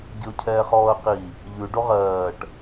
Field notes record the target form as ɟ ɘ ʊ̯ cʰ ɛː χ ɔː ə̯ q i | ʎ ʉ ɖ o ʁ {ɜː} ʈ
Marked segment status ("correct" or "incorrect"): correct